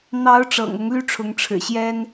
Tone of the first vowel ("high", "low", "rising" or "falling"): rising